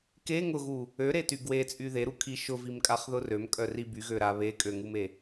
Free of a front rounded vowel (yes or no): no